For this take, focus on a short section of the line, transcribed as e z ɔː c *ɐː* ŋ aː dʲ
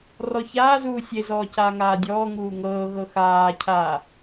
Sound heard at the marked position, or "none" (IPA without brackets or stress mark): aː